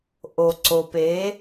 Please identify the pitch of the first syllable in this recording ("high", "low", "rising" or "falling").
low